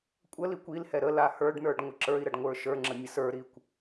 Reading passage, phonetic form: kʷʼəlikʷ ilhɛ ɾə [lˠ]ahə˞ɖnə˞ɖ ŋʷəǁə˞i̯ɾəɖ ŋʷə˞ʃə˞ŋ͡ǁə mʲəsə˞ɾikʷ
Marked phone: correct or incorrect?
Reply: incorrect